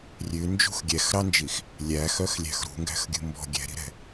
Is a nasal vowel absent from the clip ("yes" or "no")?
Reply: yes